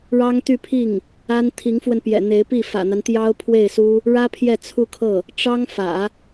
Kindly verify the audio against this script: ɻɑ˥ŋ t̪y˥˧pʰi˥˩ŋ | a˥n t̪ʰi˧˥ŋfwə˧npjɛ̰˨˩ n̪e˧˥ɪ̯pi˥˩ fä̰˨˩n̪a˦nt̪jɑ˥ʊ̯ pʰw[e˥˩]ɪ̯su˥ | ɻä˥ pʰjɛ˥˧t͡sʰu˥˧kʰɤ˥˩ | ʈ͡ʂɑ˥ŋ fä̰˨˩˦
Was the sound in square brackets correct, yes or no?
yes